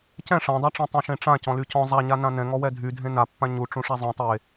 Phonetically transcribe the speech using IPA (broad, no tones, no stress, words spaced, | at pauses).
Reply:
cɛ̃ ʂãdˤaʈ͡ʂĩ tˤɛ̃ʃẽʈ͡ʂã cɔ̃lycɔ̃ zˤaɲanã nɛ̃ŋɔwɛ dʱydʱẽ napːã ɲu ʈ͡ʂũʂazˤĩ tˤe